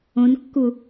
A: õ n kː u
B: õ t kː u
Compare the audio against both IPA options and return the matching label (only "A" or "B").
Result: A